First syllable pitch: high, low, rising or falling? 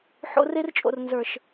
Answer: high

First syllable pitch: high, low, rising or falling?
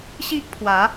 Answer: high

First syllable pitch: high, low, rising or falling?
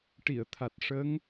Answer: low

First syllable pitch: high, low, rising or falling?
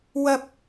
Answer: high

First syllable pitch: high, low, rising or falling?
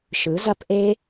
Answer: rising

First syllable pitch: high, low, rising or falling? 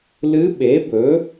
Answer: rising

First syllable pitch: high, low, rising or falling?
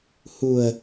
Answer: low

